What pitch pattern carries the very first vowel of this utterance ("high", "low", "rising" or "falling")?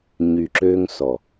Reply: low